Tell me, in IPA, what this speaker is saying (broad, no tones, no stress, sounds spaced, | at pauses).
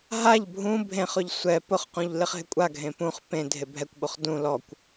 ɦ a ʎ bʱ ũ bʱ ẽ χ ʊ ʎ sʷ ɛ p ʊ χ q ũ ʎ l ɪ χ ɦ ɪ kʷʼ a ɡʱ ẽ p ũ χ p ẽ dʱ e bʱ ɛ kʷ ɓ o χ d ũ l ɔ kʷ